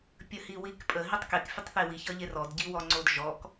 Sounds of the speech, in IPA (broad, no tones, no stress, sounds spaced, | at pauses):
pʲ ə h i w i k pʼ ə ɦ i tˤ k e k fʲ ə tˤ θ e w i ç ʌ ʎ e r ɔ d ɟ i w ɔ ŋ͡ǀ o d ʒ ɔ k